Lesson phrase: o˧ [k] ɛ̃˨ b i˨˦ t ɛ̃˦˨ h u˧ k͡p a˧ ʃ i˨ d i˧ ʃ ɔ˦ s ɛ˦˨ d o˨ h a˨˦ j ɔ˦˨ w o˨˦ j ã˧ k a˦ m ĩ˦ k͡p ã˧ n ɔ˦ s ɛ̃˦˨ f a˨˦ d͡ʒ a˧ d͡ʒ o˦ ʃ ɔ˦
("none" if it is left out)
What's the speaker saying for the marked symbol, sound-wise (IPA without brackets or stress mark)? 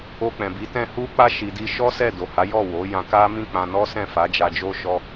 k͡p